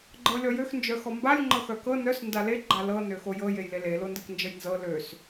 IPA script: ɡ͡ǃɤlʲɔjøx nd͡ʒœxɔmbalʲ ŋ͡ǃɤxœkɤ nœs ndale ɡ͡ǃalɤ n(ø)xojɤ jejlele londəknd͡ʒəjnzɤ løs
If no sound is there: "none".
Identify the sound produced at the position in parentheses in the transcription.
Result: ø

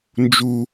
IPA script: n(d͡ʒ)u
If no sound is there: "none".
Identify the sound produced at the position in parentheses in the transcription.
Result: d͡ʒ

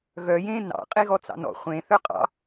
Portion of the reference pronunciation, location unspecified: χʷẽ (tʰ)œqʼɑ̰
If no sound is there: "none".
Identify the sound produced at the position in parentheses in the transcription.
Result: θ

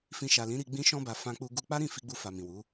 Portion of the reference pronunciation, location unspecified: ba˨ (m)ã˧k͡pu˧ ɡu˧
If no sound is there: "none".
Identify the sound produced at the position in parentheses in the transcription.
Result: f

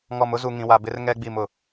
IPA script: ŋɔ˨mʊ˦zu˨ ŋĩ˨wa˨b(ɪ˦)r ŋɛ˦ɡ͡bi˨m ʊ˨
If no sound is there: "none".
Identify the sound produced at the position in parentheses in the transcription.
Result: ɪ˦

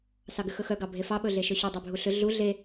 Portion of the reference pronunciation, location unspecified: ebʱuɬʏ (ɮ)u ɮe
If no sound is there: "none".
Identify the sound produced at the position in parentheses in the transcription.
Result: ɮ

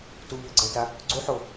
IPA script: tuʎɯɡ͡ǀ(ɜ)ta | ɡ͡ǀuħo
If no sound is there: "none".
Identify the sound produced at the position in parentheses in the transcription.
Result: ɜ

